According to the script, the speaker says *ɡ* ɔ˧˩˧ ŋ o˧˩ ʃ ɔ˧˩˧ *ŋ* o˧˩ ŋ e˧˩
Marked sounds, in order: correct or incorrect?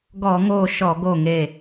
correct, incorrect

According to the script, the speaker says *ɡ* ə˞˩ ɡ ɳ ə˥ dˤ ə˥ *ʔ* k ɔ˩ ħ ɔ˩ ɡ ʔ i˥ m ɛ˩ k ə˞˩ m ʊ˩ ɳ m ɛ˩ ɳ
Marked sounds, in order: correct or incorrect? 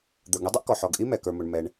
incorrect, correct

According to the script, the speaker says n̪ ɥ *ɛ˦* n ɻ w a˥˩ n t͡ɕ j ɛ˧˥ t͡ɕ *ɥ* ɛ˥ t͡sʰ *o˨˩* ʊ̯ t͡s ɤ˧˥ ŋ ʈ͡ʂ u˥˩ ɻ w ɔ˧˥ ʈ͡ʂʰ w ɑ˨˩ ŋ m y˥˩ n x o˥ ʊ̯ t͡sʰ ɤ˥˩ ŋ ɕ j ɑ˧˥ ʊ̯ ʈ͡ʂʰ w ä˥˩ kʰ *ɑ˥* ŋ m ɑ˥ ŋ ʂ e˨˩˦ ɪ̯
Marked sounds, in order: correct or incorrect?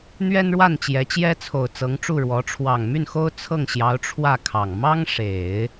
incorrect, incorrect, correct, incorrect

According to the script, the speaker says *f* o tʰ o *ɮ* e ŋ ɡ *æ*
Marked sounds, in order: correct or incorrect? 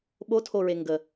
incorrect, incorrect, incorrect

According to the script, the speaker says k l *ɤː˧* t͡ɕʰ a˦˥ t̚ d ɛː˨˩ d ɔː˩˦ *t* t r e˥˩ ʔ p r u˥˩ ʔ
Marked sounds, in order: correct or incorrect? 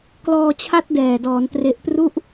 incorrect, incorrect

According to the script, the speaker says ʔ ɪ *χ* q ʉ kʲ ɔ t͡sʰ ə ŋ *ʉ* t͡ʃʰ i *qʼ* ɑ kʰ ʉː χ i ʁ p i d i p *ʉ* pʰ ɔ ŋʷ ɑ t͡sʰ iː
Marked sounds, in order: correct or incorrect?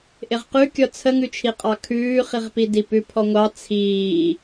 incorrect, correct, correct, correct

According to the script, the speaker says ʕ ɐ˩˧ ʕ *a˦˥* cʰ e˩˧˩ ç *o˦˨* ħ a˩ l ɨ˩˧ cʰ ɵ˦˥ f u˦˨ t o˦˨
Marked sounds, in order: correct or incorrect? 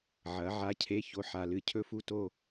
incorrect, incorrect

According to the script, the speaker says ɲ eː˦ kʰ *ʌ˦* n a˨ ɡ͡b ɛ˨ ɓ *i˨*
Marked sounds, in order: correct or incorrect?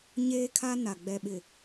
incorrect, incorrect

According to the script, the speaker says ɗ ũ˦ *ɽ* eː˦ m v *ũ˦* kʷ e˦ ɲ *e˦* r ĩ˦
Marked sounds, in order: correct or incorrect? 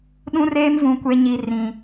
incorrect, correct, incorrect

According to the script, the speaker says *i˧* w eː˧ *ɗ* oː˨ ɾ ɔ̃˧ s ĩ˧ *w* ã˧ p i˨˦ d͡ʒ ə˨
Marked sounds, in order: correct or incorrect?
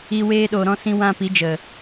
incorrect, correct, correct

